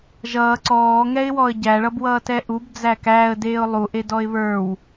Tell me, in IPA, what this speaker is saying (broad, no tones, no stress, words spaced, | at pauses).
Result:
ʒʌː ǀɔːŋɛɪ̯wɔə̯ ɟæɭʌbwʌːtɛ ʔubd͡zæ kæːə̯deːʊ̯ lˠuʔedɔɪ̯ βə˞w